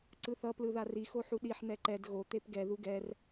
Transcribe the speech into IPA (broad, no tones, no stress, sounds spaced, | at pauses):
ǀ ɯ θ ʌ p l ɯ ð a r i x o ħ u ɗ i ħ n̪ ɛ ǃ ɛ d ɣ o t̪ e p ɡ ɛ ð u ɡ ɛ r